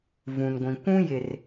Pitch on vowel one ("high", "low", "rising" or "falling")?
low